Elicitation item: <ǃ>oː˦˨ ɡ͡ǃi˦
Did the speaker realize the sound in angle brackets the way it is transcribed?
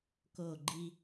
no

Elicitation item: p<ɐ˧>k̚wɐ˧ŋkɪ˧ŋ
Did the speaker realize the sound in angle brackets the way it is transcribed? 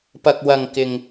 yes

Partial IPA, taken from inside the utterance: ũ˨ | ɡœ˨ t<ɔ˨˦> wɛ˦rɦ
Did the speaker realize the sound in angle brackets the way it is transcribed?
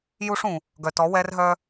yes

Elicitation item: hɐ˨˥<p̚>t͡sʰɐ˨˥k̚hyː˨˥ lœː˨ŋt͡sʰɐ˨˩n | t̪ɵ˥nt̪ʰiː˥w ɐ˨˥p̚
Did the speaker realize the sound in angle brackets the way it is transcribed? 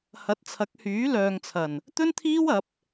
no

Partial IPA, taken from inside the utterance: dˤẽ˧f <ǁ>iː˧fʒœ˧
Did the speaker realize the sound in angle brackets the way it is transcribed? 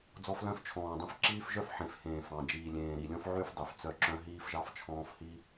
yes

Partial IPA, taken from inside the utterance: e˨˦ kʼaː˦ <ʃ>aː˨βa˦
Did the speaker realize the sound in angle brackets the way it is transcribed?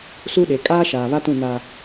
yes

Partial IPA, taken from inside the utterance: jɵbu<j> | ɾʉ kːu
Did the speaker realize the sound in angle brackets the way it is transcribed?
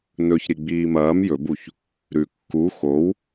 no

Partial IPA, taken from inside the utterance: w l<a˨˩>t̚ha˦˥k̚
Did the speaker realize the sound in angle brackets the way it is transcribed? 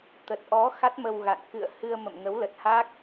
no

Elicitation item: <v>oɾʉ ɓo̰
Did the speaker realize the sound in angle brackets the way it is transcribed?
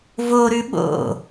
yes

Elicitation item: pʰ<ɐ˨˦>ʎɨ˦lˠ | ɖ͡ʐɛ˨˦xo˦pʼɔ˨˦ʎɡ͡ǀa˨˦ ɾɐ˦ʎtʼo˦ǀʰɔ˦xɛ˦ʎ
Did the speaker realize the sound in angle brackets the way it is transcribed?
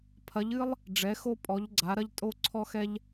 yes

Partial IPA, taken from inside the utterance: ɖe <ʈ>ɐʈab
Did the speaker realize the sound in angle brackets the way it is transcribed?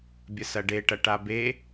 yes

